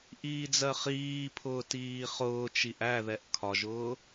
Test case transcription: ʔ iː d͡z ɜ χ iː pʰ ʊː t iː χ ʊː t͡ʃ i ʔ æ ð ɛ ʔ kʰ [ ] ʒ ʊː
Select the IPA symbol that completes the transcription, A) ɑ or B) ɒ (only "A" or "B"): B